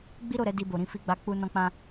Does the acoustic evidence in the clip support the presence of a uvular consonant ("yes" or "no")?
no